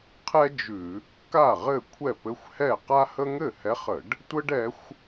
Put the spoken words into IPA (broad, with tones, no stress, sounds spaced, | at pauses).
qʰ ɛ˥ d͡ʒ ʉ˧˩˧ | k a˥˩ ʁ ɘ˥˩ kʷʰ ɛ˥˩ p ɘ˧˥ xʷ h ɛ˥˩ q a˥ h ə˥ ŋ ɘ˥˩ h ɛ˧˥ χ ə˧˩˧ ɖ | tʷ ə˥ ɖ ɛ˧˥ xʷ